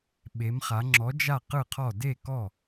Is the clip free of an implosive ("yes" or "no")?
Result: no